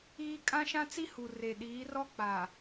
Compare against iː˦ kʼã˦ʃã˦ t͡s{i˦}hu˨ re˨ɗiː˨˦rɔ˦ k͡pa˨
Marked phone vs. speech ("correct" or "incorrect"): correct